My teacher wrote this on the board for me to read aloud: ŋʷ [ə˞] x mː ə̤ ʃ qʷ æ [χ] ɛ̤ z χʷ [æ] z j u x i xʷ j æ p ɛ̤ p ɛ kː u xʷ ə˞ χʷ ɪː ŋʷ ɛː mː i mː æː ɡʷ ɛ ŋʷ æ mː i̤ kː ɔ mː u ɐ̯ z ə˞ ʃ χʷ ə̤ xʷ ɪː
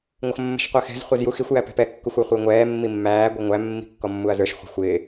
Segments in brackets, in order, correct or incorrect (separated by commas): incorrect, incorrect, correct